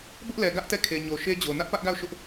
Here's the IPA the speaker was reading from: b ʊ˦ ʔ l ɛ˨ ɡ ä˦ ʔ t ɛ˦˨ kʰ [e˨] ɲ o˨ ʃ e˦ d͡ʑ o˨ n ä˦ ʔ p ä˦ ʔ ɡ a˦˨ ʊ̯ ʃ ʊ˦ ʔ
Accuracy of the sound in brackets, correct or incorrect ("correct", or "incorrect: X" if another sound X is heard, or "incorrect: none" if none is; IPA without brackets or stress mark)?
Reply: correct